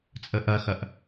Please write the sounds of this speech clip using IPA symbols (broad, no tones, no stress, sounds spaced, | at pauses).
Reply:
t͡sʼ ə ʔ ɐ x ɐ ʔ